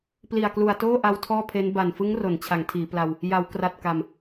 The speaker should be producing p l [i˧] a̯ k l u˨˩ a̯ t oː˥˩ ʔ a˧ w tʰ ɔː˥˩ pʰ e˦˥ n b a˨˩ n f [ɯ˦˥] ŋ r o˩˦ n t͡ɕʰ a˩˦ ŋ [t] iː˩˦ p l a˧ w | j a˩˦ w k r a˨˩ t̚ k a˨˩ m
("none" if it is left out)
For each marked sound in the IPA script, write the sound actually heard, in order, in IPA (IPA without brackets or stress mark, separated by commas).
i˨˩, ɯ˦˥, tʰ